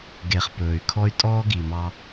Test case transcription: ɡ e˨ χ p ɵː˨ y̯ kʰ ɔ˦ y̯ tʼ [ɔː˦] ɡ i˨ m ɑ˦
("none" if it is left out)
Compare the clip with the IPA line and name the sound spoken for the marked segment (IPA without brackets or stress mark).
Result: ɔː˦